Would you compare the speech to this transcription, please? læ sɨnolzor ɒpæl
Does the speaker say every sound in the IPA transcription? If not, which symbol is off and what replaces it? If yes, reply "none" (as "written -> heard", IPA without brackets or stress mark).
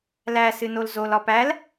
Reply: r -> l